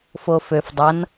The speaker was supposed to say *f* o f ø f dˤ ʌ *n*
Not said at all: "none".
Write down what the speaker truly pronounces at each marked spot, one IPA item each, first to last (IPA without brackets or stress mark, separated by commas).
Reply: f, n